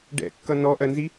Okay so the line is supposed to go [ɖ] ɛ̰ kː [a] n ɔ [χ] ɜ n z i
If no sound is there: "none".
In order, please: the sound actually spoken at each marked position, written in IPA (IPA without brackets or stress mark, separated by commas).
ɖ, ʌ, ʔ